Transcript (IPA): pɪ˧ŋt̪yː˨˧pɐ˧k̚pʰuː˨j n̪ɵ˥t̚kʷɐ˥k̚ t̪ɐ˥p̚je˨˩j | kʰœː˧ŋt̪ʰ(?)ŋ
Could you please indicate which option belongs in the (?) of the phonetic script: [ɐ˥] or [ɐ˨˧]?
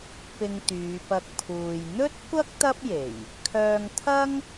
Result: ɐ˥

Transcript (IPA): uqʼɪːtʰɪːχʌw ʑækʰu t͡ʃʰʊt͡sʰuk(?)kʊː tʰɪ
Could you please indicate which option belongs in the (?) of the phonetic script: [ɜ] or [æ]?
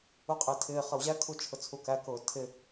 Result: æ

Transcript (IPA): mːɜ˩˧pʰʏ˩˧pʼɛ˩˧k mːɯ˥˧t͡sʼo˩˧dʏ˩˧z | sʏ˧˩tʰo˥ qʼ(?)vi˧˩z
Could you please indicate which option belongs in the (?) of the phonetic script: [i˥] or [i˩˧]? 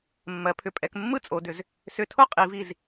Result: i˩˧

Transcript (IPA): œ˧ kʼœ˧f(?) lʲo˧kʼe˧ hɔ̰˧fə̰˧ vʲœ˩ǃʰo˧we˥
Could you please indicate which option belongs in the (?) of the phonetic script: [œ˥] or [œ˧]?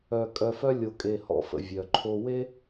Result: œ˥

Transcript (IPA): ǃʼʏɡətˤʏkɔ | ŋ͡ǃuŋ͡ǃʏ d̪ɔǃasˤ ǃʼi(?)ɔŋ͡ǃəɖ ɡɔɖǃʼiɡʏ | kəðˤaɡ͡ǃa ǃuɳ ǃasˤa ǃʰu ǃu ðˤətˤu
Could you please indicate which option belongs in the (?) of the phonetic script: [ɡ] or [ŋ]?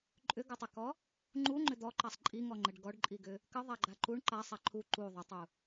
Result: ŋ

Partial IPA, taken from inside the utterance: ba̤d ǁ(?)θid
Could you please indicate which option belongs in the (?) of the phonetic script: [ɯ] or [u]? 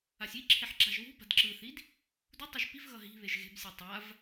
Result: ɯ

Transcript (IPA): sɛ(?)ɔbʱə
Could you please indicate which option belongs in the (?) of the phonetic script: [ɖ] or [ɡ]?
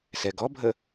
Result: ɡ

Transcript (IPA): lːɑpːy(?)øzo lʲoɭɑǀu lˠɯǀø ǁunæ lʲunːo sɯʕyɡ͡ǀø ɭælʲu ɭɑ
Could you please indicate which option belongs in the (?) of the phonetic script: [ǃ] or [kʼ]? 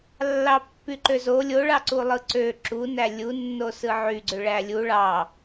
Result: ǃ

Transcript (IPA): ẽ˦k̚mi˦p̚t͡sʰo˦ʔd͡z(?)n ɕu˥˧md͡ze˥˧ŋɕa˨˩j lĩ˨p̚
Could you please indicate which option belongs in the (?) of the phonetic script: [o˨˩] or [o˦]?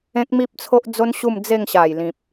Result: o˦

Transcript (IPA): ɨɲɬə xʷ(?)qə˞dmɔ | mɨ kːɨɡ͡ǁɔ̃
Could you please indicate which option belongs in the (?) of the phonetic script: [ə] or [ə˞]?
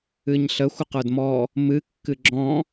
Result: ə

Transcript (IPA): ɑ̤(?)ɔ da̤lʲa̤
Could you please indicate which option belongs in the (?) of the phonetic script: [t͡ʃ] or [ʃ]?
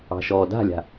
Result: ʃ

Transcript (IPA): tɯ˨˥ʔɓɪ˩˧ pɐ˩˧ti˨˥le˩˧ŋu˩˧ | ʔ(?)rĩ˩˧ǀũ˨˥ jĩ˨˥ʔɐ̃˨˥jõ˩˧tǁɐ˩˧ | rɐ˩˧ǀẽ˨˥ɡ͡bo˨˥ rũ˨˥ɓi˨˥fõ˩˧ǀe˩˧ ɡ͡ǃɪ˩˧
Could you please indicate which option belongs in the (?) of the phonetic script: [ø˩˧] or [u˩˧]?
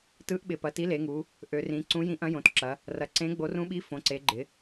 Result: ø˩˧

